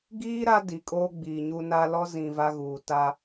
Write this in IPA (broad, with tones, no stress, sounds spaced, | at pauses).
ɡ iː˦ ɾ a˦ d i˨ kʼ oː˦ ɡ͡b iː˨ ɲ u˦ n a˦ l ɔ˦ z ĩ˨ v a˦ ɣ uː˨ t a˦